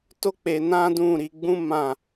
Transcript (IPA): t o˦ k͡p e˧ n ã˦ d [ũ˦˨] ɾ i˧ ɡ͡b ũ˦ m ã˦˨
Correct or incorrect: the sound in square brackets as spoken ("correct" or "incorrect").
correct